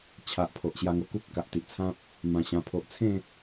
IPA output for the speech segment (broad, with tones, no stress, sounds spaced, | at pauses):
t͡ɕʰ a˨ ʔ pʰ o˨ ʔ ɕ j a˧ ŋ o˧ k u˦ p̚ k a˨ ʔ t̪ i˨ ʔ t͡sʰ ã˦ p̚ | m ã˨˩ ɕ ã˨˩ pʰ o˨ ʔ t͡sʰ ẽ˥˧